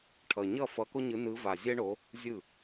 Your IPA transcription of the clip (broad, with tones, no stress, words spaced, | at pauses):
ʈʰʌ˨˩ ɲʌ˥˩fʌ˨˦ko˦ ɲɯ˨˦nɯ˨˦va˨˩ zʲɛ˦ɳo˨˦ | zʲɯ˥˩